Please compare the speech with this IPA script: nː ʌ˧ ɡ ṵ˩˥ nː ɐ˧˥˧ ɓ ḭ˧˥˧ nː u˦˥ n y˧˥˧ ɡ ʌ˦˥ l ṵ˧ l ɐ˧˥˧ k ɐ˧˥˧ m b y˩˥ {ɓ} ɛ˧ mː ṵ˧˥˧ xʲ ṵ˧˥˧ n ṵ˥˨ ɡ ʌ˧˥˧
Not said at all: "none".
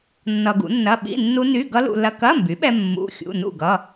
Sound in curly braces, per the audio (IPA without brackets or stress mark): ɓ